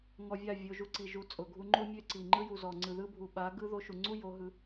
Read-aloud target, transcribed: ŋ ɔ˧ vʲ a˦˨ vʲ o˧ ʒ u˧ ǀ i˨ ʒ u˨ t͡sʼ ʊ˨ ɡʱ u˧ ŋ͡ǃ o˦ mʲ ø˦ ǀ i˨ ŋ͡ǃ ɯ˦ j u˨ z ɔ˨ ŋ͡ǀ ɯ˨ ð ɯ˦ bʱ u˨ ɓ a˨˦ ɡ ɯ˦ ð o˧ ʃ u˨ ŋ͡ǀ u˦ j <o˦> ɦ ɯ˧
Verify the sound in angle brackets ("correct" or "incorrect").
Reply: incorrect